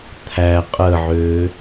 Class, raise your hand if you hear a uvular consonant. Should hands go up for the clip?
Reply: yes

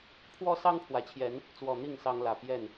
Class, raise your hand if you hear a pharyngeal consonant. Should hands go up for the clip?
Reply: no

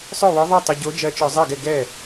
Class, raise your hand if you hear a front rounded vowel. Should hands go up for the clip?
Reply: yes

